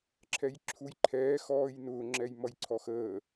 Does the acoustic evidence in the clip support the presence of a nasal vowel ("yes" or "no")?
no